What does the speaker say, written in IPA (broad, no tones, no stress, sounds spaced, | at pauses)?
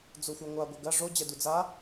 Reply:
d͡z o xʷ a ŋʷ a ɡʷ ɘ ɡ ɐ ʐ o d͡ʑ ɛ d u d͡z a